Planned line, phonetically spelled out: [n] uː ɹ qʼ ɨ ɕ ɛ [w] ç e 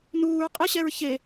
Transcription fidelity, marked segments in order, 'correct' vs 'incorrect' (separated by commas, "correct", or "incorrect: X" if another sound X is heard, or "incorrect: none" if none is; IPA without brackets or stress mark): correct, incorrect: ɹ